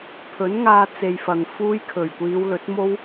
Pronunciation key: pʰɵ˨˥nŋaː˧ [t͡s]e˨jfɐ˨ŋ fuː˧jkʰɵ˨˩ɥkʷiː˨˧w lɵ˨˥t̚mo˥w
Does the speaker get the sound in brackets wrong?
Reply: no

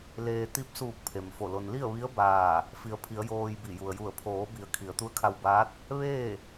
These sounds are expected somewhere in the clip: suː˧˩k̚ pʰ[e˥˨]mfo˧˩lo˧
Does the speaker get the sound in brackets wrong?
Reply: yes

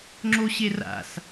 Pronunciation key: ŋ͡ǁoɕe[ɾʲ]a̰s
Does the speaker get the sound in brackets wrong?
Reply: yes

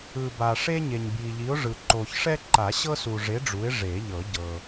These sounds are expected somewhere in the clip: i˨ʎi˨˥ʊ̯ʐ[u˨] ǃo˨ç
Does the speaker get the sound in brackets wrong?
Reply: yes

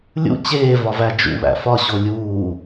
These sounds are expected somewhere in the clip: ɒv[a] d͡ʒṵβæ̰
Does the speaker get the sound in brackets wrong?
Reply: yes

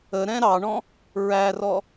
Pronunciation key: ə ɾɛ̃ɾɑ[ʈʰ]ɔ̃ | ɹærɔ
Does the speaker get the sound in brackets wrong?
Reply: yes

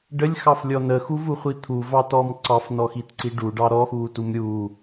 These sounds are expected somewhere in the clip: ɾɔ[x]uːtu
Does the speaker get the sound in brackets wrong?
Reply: no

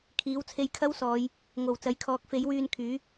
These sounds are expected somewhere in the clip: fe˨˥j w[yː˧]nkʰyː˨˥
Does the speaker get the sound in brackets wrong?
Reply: no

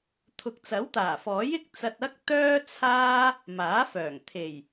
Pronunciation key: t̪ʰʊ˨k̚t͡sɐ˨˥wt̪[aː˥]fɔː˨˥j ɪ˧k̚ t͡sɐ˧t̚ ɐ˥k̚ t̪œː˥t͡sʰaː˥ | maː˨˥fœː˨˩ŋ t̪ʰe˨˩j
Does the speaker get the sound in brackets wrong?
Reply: yes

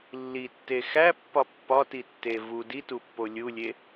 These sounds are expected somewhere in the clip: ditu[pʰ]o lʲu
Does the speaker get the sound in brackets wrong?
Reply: yes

